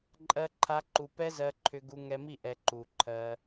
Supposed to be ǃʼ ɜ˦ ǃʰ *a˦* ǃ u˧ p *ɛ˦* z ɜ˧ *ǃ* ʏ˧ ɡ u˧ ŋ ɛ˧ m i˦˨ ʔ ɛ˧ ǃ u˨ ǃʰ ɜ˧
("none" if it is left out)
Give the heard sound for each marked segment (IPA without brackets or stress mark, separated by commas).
a˦, ɛ˦, ǃʰ